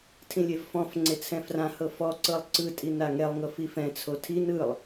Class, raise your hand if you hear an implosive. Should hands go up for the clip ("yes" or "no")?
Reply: no